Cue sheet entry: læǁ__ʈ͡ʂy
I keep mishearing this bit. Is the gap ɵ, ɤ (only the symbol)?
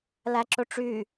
ɵ